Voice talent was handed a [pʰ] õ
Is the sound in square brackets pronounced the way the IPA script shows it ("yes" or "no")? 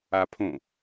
yes